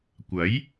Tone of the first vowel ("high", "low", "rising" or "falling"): rising